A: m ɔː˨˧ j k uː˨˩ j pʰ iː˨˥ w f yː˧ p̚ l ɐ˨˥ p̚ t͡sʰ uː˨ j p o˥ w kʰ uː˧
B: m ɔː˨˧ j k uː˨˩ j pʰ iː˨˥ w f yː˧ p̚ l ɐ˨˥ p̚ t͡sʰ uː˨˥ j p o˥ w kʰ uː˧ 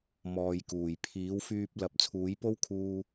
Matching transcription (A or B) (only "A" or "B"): B